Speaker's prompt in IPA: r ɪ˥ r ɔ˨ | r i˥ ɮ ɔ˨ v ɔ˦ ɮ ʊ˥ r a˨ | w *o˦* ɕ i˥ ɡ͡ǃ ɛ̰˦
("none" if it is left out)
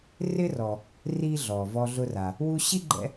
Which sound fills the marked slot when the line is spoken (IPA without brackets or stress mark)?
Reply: u˦